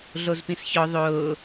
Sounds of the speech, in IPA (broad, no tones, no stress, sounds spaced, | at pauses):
ɮ o z p ĩ s ç ɔ ðˤ ʊː